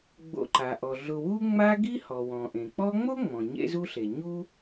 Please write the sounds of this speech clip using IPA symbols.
ɡ͡b o̰˨ ǃ a˩ ʔ ɔ˩ ɮ ʊ˨ w u˦ ŋ͡m a˦ ɡ i˦ h ɔ˩ w ɔ̃˩ ʔ ẽ˩ k͡p ɔ˦ ŋ͡m o˥ ŋ͡m ɔ̃˩ ɲ ḛ˥ z u˥ ɬ e˩ ɲ u˥

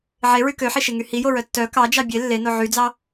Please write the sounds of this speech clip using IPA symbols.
ʕ e ɹ y k ø ħ i ʃ e ŋ y h i j o ɹ œ tː œ k ɑ d͡ʒ ɑ bʲ e lː e n o ʕ y d͡z ɑ

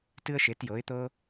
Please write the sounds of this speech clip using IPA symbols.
t ɨ˥ ə̯ ʃ e˩˥ t j ɤ˩˥ ɪ̯ t̪ ɤ˥

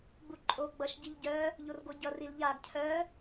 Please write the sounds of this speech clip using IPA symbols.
ɡ͡b u ǃʼ o ɡ͡b ʌ ʃ ɟ i ʎ ɟ œ | ʎ o r ɡ o ɟ ʌ r i l ʎ a ɡ cʰ œ

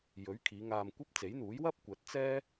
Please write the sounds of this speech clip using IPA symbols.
j ɵ˨˥ ɥ kʰ iː˨˧ ŋ aː˧ m kʷ ɐ˥ p̚ t͡s e˨˥ j n̪ uː˨˥ j w ɐ˥ p̚ kʷ ɐ˨˥ t̚ t͡s ɛː˥

